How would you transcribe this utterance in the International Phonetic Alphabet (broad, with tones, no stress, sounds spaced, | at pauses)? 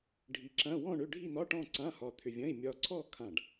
ɖʱ i˧ ǁ ɐ̃˧˥˧ w ɔ̃˥˧ ɳ ʏ˧˥˧ ɖʱ i˥˧ n̪ ɒ˧˥˧ ʈ ɔ̃˥˧ ǀ ã˧˥˧ h ɒ˧ t̪ʰ ʏ˧ vʲ ɐ̃˧˥˧ i̯ mʲ ɒ˧ ǀʰ ɔ˥˧ kʰ ã˧˩ ɖ